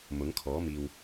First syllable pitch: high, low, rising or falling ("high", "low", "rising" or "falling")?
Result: rising